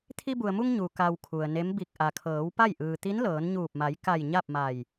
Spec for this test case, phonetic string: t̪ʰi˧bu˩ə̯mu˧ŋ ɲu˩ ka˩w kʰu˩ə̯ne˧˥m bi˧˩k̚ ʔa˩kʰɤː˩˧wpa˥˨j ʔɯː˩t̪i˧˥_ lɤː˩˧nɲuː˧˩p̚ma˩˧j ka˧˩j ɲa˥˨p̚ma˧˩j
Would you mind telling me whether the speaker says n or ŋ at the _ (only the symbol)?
n